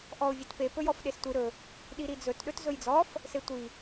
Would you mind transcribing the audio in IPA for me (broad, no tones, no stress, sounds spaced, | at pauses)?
ʔ ɔ ʊ̯ vʲ e t p e p ɵ j ɔ f ɗ e s tʷ i ɾ ɵ | ɗ i ɾ i d͡z ɵ t ɗ ɵ t z ɵ j d͡z ɔ f | s e tʷ i